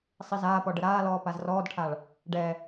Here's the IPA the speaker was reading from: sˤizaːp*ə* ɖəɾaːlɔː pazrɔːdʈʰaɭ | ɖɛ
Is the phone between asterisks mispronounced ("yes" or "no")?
yes